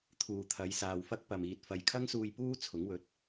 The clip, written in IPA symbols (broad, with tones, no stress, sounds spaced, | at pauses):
t̪ʰ uː˨ t̪ʰ ɐ˨˧ j s aː˨ w f ɐ˥ k̚ p ɐ˨ m iː˨ t̚ f ɐ˨ j kʰ ɐ˥ ŋ s uː˧ j p uː˥ t͡sʰ ʊ˨˥ ŋ w ɵ˨ t̚